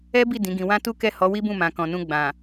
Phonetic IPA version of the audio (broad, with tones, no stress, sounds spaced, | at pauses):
ɛ˦ b i˦˨ d ĩ˨˦ ɡ ĩ˧ w ã˦ t u˦ k ɛ˦˨ h ɔ˨˦ w i˦ b ũ˦˨ m ã˨ k ɔ̃˨ n ũ˧ ɡ͡b ã˨